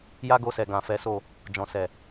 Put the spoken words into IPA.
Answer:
j a˦ ɡ o˧ s ɛ˨ ɡ ã˨ f ɛ˨˦ s o˦˨ | d͡ʒ ɔ̃˨ s ɛ˨

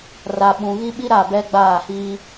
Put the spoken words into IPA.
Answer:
r a˨ ɓ ũ˨ ɣ i˦ ɓ i˦ ɾ a˦˨ b ɛ˦ ɡ͡b aː˦˨ h iː˦

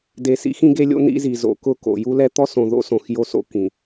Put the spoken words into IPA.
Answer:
d e˨ s ḭ˦ x ĩ˦ ɡ e˦ lʲ o̰˦ n ḭ˦ z i˨ z o̰˨ k ʊ˦˨ k o̰˨ j u˦ l ɛ˦ t̪ ɔ˦ s õ˨ ð o̰˦ s õ˨ x j o˦ s o̰˦ k ĩ˨

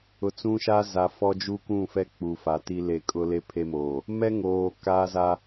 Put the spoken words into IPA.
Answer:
ʊ˨ t͡s ũ˦ ʃ a˦ z a˨ f ɔ˦ d͡ʒ u˦ k ũ˦˨ f ɛ˦ k͡p u˨ f a˨ t i˦ l e˦˨ kʼ ʊ˦ l e˦ pʰ e˦ m oː˨ | m ɛ˦ ŋ oː˨ k aː˦ z a˦

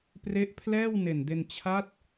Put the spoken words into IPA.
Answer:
p r e˦˥ ʔ pʰ l ɛː˥˩ w n e˨˩ n d e˧ n t͡ɕʰ a˦˥ t̚

